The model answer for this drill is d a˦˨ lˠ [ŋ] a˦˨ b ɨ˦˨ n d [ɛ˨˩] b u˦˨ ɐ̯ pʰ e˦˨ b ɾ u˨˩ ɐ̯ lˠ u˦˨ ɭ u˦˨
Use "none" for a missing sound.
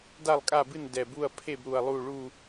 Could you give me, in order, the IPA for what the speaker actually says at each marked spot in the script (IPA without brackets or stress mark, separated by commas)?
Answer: kʼ, ɛ˨˩